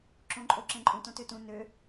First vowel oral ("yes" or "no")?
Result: no